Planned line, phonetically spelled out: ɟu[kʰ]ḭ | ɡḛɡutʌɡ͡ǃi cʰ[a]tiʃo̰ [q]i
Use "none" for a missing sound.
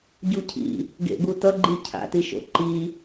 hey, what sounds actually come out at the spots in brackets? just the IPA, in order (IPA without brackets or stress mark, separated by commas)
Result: cʰ, a̰, ǃ